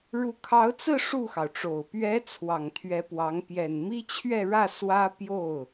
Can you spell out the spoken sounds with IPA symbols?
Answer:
ɻ u˧˥ kʰ ɑ˧˥ ʊ̯ t͡s ɹ̩˥˧ ʂ u˥˩ x ɑ˩ ʊ̯ ʈ͡ʂ o˨˩ ʊ̯ p ɥ ɛ˧˥ t͡sʰ w ɑ˨˩ ŋ t̪ʰ ɥ ɛ˧˥ p w ɑ˧˥ ŋ p j ɛ˨˩ n m i˥ t͡ɕʰ ɥ ɛ˥˧ ɻ ä˥˩ s w ä˥ p j o˥˩ ʊ̯

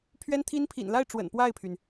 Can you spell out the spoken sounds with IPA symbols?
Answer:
pʰ ɥ ɛ˥ n t̪ʰ i˥ n pʰ ḭ˨˩ n l a˥˩ ɪ̯ ʈ͡ʂ w ə̰˨˩ n p w a˥˩ ɪ̯ pʰ y˩ n

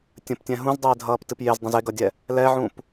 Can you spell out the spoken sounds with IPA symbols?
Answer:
tʲ ə̃ p tʲ ɛ̃ ɦ ũ z dˤ eː dʱ ʌː p t ɨ p j e z dˤ ə̃ z e ɡ ʌ dʲ ɛ | l ɛ ʕ ũ p

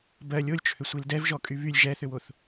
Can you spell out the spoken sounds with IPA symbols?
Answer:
b ɜ lʲ o lʲ t͡ʃʰ ʏ sʷ i l d ɛ v ʒ ɔ kʼ y β y lʲ ʒ ɛ θ ʏ w o θ

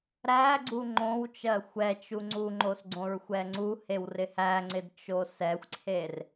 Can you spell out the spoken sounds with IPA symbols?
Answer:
ɾ æ ɡ͡ǀ u ŋ͡ǃ õ w t͡ʃ ɜ xʷ ɛ t͡ʃ u ŋ͡ǀ u ŋ͡ǃ o s ɡ͡ǀ õ ɹ xʷ ɛ ŋ͡ǀ u h e w r ɪ h æ ŋ͡ǀ ɪ d t͡ʃ o s ɛ xʷ ǀʰ e r

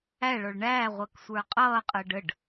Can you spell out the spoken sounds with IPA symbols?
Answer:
æ ɭ ɔ ɭ ɳ æː ʁʷ əː k sʷ ə˞ qʼ ʌː qʼ əː ɖ ə ɖ

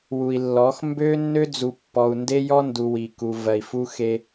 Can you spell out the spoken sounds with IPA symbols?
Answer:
w u˨ i̯ lː ɔ˨˦ x m b ø˦ nː ø˦ d͡z u˨ pː ɔ˨ u̯ n d e˦ j ɔ˦ n d u˨ w i˨ k u˨ v ɜ˨ i̯ f u˦ x e˦

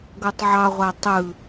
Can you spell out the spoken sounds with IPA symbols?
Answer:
ɡ o tˤ ʕ ɑ ʁʷ æ tˤ ɯ

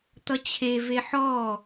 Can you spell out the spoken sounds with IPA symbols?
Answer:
t̪ ʌ t͡ɕʰ e v e ħ ɔ

